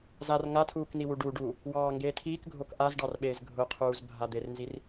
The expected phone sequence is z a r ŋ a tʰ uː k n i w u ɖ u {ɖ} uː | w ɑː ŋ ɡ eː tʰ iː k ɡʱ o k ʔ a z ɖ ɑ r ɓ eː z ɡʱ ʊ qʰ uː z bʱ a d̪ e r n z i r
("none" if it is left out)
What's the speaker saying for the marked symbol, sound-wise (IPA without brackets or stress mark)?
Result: ɖ